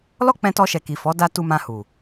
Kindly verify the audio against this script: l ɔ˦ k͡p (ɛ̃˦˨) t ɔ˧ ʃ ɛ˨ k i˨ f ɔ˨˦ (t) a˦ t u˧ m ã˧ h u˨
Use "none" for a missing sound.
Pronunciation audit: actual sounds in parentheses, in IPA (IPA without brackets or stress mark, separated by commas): ɛ̃˧, d